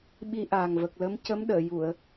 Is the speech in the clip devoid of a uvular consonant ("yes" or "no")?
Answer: yes